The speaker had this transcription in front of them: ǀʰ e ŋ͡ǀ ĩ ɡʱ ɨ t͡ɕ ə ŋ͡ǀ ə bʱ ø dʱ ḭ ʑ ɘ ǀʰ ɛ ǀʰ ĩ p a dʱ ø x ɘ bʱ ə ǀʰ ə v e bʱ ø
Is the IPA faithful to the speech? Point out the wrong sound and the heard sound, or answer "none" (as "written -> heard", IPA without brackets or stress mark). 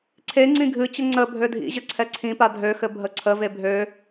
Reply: none